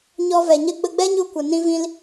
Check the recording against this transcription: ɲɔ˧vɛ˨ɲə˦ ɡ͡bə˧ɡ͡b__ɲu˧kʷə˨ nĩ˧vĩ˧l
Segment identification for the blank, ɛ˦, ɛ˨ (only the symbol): ɛ˦